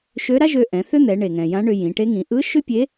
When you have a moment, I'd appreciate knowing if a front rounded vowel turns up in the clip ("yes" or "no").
yes